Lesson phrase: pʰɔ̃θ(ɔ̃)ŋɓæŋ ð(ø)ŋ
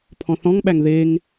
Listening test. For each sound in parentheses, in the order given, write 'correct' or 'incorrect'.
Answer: correct, incorrect: e

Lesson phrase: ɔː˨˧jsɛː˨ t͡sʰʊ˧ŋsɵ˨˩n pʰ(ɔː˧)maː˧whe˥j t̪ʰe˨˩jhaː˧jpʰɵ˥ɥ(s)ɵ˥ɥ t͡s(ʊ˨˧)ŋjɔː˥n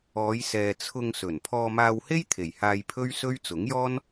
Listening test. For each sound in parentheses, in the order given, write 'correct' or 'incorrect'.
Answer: correct, correct, incorrect: ʊ˨˥

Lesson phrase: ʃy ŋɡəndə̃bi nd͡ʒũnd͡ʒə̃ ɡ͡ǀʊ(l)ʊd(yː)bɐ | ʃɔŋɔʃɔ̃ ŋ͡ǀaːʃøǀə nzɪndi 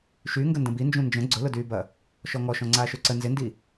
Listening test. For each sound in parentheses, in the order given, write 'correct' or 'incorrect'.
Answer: correct, correct

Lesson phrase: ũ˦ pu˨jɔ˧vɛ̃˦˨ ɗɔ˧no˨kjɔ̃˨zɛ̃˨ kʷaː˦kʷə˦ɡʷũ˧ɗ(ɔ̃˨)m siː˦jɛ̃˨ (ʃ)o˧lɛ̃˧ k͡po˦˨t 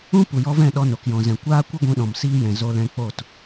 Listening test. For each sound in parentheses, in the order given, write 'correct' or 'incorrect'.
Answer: correct, incorrect: z

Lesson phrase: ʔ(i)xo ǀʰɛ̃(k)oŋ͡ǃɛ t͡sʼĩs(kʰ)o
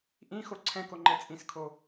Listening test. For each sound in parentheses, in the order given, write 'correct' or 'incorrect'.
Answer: incorrect: ĩ, correct, correct

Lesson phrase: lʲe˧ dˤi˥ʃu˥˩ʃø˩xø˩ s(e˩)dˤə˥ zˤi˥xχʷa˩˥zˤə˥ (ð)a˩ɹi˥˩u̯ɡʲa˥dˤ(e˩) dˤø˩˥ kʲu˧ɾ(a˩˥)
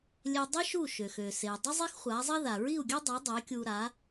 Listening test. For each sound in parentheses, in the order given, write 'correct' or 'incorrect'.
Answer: correct, correct, incorrect: e˩˥, correct

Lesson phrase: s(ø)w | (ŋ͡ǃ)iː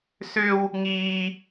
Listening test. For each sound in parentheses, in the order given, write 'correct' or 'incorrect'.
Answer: correct, incorrect: ŋ

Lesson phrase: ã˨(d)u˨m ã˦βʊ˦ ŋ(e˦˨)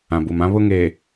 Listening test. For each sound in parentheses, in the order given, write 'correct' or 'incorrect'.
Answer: incorrect: b, incorrect: e˨

